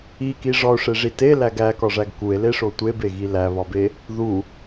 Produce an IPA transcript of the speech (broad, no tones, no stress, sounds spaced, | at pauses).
i k i ʐ ɒ o̯ ʂ e ʐ i t e l æ ɡ æ k ɒ ʐ æ ɡ k u e̯ l e ʂ o tʷ e b e ɣ i l æ β ɒ b e | ð u